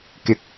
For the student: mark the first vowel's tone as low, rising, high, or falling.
low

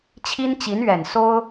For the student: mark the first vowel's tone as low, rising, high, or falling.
high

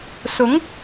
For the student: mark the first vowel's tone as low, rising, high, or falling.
rising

